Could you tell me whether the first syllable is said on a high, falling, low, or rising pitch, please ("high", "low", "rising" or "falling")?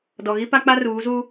low